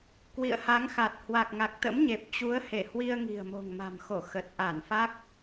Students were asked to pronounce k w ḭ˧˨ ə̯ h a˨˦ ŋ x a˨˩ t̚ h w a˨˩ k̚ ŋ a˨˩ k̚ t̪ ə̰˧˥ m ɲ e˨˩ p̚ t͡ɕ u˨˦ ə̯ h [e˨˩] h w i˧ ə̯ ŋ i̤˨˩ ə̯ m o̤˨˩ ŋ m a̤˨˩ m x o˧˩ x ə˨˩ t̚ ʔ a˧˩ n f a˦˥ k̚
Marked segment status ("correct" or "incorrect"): incorrect